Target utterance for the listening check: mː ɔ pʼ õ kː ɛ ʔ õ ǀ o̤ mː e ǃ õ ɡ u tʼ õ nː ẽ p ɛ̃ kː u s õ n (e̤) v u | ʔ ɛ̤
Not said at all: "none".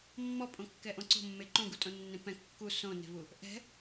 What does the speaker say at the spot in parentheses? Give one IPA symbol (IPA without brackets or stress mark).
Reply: e̤